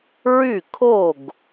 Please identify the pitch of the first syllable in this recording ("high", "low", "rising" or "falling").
falling